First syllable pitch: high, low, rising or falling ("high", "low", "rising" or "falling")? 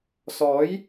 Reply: rising